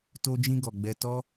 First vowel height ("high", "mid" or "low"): mid